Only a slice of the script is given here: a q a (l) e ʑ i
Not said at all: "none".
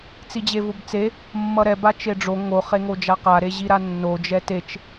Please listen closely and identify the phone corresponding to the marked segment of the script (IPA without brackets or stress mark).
ɾ